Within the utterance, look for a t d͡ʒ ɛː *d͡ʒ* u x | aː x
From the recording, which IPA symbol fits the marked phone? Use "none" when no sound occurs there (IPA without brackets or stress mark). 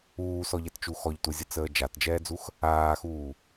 d͡z